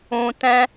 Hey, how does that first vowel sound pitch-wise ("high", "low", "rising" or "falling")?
low